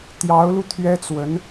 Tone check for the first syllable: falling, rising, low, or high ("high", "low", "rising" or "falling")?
rising